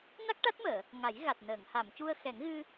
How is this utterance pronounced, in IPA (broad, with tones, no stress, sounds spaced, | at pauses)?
n a˦˥ k̚ ʈ a˦˥ t̚ m əː˨˩˨ | ŋ a˨˩˦ j ɣ a˨˩ t̚ n əː˨˩˨ ŋ h a˨˩˨ m c u˧ ə̯ x ɛ˨˩˦ ŋ ɣ ɨ˧